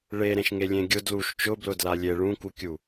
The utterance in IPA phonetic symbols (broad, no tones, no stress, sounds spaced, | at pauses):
ɭ e ɾ ẽ ʃ ŋ e lʲ ẽ ɡʲ ʊ d l u ʃ t͡ʃ ʊ b l ʊ d l a lʲ e ɭ ũ k u kʲ u